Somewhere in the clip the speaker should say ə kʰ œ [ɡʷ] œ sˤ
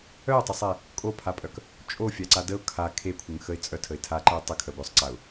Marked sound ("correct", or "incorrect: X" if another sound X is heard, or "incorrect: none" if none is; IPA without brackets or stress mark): correct